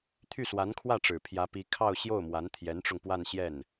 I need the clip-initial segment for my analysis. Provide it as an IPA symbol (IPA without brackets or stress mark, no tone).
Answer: t̪ʰ